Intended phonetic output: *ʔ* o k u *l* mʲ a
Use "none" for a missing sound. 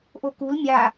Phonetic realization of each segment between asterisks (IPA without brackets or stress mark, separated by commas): ʔ, l